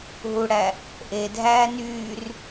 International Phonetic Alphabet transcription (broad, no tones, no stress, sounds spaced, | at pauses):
ɦ u ɽ æ | ʔ e dʱ æː n yː r